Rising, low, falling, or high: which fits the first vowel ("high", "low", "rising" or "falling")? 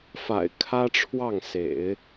low